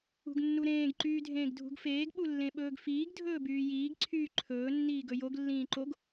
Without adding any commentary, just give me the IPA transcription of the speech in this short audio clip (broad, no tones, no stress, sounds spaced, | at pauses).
ṳ ɡ nː u ɾ ẽː ɡ ǃ yː dʱ ẽː ɡ dʱ ṳ ɡ f eː ɡ ɓ u lː ẽ ɓ ɵː ɡ f iː ɡ dʱ ɵː b yː j iː ɡ ǀʰ yː ǃʰ ɵː nː iː ɡ ɵ j o ɡ lː ĩː ǃ o ɡ